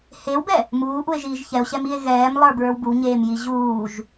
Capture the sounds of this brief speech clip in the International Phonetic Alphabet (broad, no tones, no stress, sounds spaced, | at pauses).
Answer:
h e w b ɛ | m uː ʔ u e̯ ʒ iː ʒ ç ɛ o̯ ɕ ɛ m i e̯ ɣ ɛː m lˠ ə˞ b ɹ ə˞ w b u ɲ eː m j i ʑ uː ʒ